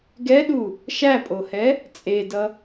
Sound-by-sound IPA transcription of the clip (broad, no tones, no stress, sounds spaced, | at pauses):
ɡ ɛ ɗ u | ʃ æ pʼ o h ɛ | t͡sʼ e d ʌ